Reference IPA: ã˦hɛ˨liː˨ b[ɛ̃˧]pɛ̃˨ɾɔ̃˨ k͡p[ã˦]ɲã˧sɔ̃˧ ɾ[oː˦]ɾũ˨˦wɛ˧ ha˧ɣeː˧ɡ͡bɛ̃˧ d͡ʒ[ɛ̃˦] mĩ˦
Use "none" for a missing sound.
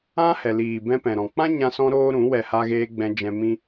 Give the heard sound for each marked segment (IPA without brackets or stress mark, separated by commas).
ɛ̃˧, ã˦, oː˦, ɛ̃˧